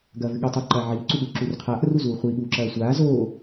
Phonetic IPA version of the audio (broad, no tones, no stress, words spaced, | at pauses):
ɡɐːvɨɠɨtˤiː ǃɐːʕiːǀuɠuː ǁurqʰaːʔ ruzuːχʷi ɠuːǁɐːsʷaː zoː